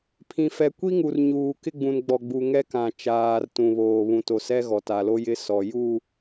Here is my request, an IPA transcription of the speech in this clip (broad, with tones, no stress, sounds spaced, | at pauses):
pʰ ĩ˨ f ɛ˨ kʷ i˦ ŋ u˨ r ɲ uː˨ k ɪ˦ ɡ͡b ũ˨ n ɡ͡b ɔ˨ ɡ͡b u˨ ŋ ɛ˦ k ã˨ t͡ʃ aː˨ r t ũ˨ β oː˨ β ũ˨ t o˨ s ɛ˦ ɣ ɔ˨ t a˨ l o˦ j ɪ˦ s ɔ˨ j u˦˨